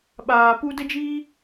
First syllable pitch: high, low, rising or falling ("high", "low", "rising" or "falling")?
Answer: low